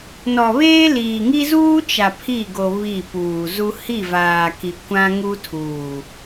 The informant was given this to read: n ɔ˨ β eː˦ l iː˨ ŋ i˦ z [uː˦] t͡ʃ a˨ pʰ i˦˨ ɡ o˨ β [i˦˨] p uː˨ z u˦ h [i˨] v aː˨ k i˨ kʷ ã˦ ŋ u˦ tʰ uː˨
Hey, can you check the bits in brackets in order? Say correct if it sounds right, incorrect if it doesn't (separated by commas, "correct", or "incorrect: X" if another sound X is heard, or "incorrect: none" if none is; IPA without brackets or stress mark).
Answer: correct, correct, incorrect: i˦˨